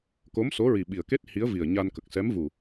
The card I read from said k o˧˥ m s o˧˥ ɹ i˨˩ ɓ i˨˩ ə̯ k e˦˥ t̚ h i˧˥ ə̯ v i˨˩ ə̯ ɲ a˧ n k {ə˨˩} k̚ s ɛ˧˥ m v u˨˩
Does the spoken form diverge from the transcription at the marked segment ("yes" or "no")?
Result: no